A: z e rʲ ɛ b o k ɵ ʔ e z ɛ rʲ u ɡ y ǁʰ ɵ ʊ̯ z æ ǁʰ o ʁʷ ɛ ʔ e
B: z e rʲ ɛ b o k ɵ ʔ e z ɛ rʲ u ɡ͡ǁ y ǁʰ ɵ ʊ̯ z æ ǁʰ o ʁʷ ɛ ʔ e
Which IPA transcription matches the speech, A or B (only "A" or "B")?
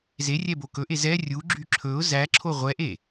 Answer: B